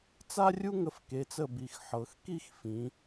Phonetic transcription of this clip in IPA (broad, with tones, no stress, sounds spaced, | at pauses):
t͡s a˥ rʲ u˥ ŋ ə˧ f k e˩˧ t͡s ə˧˩ b i˩˧ x ħ ɤ˩˧ x k i˥˧ x f ĩ˩˧